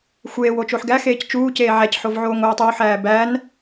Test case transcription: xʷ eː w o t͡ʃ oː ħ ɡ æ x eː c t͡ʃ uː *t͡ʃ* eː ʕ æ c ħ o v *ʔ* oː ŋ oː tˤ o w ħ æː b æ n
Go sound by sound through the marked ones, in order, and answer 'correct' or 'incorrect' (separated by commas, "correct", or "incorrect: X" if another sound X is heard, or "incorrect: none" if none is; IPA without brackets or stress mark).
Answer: incorrect: c, incorrect: ʕ